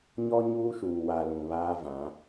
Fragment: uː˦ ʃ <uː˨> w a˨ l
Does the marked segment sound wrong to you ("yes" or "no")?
no